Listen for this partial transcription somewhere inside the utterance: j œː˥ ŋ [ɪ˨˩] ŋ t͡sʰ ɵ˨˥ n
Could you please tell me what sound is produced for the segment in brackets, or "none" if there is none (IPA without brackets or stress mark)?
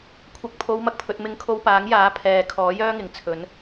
ɪ˨˩